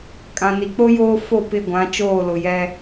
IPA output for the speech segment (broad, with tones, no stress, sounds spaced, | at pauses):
kʼ ã˨ n i˨ k͡p o˦ j oː˦ f o˦˨ p ɪ˦˨ ɡʷ ã˨˦ t͡ʃ oː˦˨ l ʊ˨ j ɛ˦